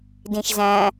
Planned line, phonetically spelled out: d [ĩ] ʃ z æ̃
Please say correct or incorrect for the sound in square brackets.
correct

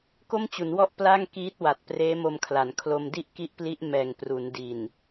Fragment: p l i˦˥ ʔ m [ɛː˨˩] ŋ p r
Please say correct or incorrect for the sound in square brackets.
correct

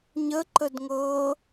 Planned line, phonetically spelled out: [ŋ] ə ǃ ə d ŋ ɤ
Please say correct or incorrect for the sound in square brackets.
incorrect: ɲ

